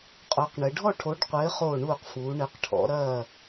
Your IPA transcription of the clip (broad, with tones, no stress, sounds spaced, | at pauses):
qʼ o˨˦ q ɳ ɘ˨˦ ɖʱ ɔ˦˨ ʈʰ o˨˦ ɖ qʷ ɘː˨˦ χ oː˦˨ ɳ uː˦˨ q f uː˨˦ ɳ ɘ˨˦ q ʈʰ ɔ̰˨˦ ɾ ɐː˦˨